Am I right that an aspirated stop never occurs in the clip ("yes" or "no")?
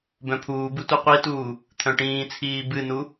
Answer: no